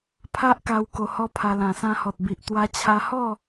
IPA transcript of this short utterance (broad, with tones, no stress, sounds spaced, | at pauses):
pʰ a˦ ʔ k a˧ w k o˧ h ɔ˦ pʰ a˧ l ã˨˩ s ã˧ h ɔ˨ t̚ b i˨ ʔ t̪ w a˧ t͡ɕʰ a˧ h ɔ˥˧